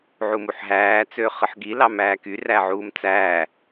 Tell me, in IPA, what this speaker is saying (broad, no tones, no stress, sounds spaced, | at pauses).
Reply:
ʕ u m u ħ ɦ æː t͡s øː χ ɯ ħ ɡ i l ɑ m æː k y r æ ʕ uː m t͡s æː